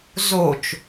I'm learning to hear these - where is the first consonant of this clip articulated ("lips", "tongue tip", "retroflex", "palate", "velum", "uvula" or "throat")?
tongue tip